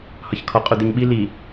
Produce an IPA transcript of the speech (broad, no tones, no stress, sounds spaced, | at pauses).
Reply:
h ɒ ç kʰ ɒ qʼ u d̪ i ɲ ɓ i l i